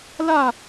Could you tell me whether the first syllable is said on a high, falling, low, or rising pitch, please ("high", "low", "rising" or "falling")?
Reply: falling